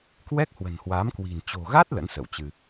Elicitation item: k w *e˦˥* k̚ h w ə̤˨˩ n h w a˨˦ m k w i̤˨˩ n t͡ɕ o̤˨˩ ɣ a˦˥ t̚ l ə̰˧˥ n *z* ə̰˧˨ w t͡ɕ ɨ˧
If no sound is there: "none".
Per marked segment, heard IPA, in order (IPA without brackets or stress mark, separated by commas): ɛ˦˥, s